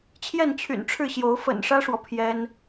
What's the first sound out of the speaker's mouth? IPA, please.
t͡ɕʰ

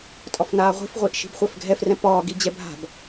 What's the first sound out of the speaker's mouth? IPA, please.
tʼ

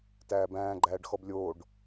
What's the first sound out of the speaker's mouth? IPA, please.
t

